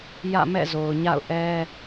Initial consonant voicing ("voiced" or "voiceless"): voiced